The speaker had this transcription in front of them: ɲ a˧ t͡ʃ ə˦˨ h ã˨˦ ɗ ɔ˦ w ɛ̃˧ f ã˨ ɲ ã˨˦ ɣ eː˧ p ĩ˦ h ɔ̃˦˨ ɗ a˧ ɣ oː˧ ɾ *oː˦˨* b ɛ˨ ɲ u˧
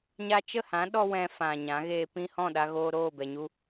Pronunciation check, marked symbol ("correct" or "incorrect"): correct